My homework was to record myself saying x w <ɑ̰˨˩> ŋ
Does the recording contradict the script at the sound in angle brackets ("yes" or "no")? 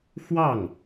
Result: yes